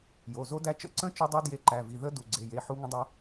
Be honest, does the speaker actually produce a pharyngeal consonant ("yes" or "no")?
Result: yes